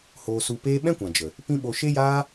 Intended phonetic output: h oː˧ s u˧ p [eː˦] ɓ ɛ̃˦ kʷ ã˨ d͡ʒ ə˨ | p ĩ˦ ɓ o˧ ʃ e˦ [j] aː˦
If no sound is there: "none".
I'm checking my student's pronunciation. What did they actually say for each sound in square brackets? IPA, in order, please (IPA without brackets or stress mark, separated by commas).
eː˦, j